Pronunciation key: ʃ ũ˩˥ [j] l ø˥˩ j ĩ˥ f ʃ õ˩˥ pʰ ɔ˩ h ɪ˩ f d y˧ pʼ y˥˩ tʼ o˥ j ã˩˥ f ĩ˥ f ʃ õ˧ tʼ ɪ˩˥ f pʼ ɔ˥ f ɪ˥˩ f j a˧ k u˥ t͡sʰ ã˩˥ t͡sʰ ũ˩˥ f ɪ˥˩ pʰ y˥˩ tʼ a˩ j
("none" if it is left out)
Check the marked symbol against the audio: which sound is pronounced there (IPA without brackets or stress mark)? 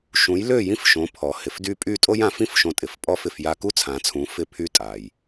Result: j